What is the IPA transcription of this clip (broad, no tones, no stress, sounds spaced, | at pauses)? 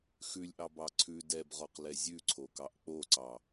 x ʉ lʲ ʔ ɑ b ɑ ǀʰ ʉ d ɛ b ʁ ɔ q l ɛ zʲ ʉ ǀʰ o k ɑ ʔ k͡p o ǀ ɑ